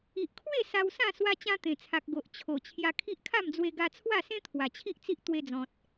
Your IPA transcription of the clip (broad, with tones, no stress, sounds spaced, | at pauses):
i˨ ʔ kʰ w e˥˧ s a˧ w s ã˥˧ s w a˧ t͡ɕ ã˧ t̪ ẽ˨˩ t͡sʰ a˨ k̚ ɡ o˨ ʔ t͡ɕʰ o˨˩ t͡ɕʰ j a˧ kʰ i˦ ʔ kʰ a˥˧ m d͡z w e˧ ɡ a˧ t͡sʰ w a˥˧ s ẽ˦ t̪ʰ w a˨˩ t͡ɕʰ i˦ ʔ t͡s i˦ ʔ t̪ w e˧ d͡z ɔ̃˨ t̚